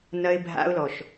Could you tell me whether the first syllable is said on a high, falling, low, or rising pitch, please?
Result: high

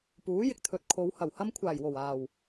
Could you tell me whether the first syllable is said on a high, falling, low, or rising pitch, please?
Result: rising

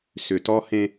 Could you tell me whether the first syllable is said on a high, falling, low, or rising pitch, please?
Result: low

